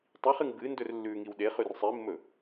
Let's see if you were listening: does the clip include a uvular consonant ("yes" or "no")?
yes